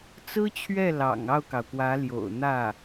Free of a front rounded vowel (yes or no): yes